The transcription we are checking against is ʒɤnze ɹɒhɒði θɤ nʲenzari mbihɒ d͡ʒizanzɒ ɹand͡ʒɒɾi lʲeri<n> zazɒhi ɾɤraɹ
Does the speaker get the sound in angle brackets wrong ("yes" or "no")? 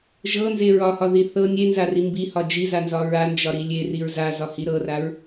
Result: yes